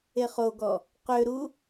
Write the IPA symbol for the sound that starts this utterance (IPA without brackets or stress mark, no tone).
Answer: e